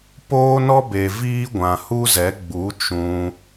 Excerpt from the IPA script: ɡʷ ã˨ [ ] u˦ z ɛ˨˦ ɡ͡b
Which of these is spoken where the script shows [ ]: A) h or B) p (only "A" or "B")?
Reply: A